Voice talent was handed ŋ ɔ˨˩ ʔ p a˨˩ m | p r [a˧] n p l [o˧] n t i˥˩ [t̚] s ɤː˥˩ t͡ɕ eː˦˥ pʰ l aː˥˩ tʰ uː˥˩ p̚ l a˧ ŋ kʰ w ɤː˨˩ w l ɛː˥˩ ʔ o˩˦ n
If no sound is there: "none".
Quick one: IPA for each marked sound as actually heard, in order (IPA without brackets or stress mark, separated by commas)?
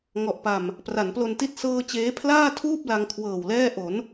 a˩˦, o˧, t̚